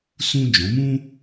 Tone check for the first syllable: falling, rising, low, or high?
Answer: high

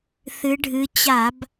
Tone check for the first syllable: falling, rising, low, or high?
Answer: rising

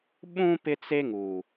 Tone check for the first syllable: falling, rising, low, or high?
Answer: high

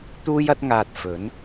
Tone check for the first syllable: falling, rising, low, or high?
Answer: high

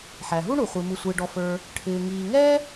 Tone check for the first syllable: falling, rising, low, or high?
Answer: low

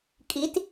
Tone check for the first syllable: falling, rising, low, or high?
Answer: rising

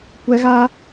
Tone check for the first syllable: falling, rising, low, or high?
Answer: high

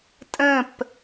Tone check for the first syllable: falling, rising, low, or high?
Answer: falling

